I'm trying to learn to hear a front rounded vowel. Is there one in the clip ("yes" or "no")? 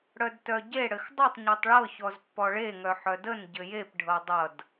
yes